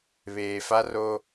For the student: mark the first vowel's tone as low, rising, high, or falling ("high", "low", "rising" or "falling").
low